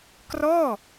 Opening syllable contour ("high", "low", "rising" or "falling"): falling